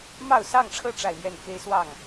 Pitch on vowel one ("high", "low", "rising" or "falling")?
falling